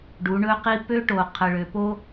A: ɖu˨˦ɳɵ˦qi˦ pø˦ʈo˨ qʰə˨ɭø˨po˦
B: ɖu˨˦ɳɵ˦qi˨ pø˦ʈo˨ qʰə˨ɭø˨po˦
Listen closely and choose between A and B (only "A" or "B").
A